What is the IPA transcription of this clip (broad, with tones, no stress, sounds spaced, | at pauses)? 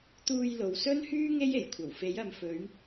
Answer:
t̪ uː˧ j l o˨ w s ɵ˥ n h yː˥ ŋ e˥ j e˨˩ j kʷʰ ɐ˨˩ w f e˨˥ j ɐ˨˧ m f ɵ˨˧ ɥ